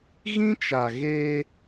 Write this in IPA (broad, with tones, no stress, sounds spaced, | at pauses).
ɣ ĩ˦ t͡ʃ a˨ ɣ e˦